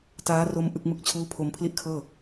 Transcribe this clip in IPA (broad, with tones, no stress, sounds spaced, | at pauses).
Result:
t aː˦˥ r o˦˥ m ʔ ɯ˦˥ k̚ m ɯ˥˩ k̚ t͡ɕʰ uː˥˩ pʰ o˧ m pʰ l i˥˩ ʔ kʰ ɤː˥˩